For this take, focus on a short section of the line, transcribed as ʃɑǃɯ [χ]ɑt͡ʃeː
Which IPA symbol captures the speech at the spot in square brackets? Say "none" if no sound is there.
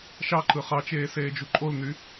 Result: χ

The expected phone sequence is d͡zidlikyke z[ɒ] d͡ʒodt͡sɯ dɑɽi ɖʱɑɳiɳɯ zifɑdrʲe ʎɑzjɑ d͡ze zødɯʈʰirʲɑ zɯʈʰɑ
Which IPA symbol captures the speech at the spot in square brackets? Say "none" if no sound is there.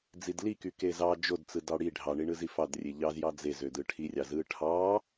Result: ɑ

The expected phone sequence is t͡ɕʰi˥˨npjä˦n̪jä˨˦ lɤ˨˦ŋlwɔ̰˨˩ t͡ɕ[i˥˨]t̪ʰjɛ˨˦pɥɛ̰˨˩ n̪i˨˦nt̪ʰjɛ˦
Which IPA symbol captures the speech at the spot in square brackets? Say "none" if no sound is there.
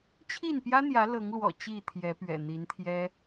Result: i˥˨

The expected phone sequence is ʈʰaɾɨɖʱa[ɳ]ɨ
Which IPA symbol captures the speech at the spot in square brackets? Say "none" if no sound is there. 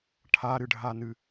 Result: n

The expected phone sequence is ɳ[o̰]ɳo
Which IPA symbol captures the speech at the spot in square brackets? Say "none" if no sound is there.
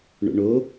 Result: o̰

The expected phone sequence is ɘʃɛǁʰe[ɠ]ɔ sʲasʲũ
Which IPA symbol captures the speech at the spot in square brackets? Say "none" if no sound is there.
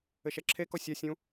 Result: k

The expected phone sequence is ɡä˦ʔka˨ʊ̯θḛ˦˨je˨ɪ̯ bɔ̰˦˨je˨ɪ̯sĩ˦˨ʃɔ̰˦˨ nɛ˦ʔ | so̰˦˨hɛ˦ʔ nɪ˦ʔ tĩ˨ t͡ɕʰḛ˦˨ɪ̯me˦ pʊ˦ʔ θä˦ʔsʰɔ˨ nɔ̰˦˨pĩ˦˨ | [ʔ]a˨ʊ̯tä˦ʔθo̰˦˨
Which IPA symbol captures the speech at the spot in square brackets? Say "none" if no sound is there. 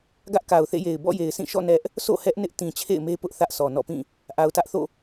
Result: ʔ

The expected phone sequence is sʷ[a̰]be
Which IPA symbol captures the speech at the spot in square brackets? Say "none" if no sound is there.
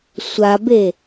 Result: a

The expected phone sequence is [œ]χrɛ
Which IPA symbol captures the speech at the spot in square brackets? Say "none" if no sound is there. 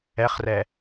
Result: ɛ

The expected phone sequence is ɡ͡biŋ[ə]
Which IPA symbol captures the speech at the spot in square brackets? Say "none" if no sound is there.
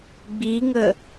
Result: ə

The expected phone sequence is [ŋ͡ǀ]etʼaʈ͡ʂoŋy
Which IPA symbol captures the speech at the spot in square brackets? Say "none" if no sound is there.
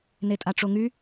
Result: n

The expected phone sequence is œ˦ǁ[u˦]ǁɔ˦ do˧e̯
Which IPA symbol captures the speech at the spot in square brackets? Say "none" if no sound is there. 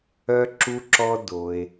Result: u˦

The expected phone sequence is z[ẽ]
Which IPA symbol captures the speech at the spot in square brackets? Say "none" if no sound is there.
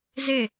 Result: e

